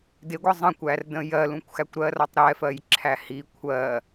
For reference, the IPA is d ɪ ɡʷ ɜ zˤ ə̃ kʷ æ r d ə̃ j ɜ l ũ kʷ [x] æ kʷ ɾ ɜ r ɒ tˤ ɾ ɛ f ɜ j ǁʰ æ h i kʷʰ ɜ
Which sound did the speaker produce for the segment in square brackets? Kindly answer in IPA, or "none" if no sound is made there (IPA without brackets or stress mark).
x